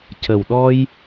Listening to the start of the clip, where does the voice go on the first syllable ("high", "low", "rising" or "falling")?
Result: low